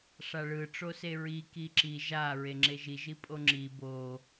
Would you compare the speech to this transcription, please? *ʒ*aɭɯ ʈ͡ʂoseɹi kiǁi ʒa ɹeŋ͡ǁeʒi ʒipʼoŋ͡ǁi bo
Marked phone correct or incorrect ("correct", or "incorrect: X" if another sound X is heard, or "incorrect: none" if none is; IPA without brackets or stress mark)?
incorrect: ʂ